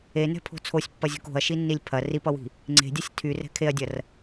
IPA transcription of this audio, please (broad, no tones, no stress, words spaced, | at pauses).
enɛ̤pʰo̤ t͡sʰosʲpːɐzʲo̤k o̤ɐ̯ʃinːilʲ pʰɐ ripʌwi̤ | ŋ͡ǀe̤dʲʌsʲ tʰyrɛ̤ kʰeɐ̯dʲɐr